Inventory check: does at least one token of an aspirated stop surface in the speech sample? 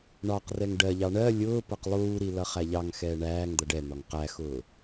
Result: no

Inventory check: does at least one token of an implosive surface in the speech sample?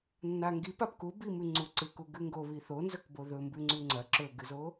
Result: no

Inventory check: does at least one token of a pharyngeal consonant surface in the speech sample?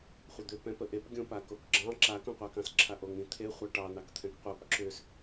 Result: no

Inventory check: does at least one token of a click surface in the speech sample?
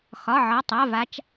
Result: no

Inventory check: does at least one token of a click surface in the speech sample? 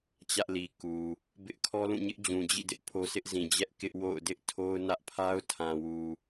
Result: no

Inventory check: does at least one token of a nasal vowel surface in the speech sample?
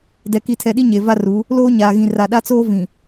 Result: yes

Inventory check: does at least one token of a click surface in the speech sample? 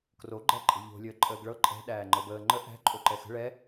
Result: yes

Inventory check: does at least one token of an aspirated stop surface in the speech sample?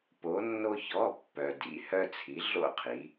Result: yes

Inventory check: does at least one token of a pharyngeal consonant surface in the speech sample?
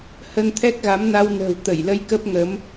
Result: no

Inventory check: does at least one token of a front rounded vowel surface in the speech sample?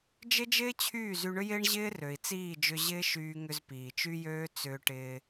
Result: yes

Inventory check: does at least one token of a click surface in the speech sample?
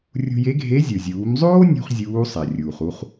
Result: no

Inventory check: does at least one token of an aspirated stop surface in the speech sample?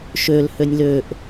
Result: no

